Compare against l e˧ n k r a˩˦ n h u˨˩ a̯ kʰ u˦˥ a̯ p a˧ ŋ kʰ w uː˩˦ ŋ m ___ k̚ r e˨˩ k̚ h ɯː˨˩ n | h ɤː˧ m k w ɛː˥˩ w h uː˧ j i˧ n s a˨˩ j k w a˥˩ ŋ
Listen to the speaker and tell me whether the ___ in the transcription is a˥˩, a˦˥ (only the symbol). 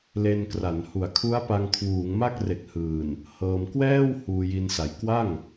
a˥˩